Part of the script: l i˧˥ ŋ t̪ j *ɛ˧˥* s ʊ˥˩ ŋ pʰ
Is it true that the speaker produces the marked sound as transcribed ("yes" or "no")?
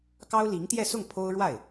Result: no